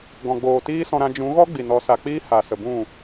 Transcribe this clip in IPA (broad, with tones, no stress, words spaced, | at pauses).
ɡɔ̃˨ɡ͡boː˨ tiː˦sɔ̃˧ɾã˧ d͡ʒũ˨˦ɣɔ˦ ɡ͡bi˨nɔ˨˦sa˨k͡piː˦ ha˨ sə˨bũ˦˨